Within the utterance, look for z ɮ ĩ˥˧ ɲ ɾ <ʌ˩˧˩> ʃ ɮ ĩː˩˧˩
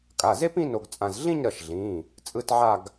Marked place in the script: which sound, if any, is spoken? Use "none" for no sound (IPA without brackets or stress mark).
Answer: ʌ˩˧˩